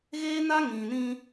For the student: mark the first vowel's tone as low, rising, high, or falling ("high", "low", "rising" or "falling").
high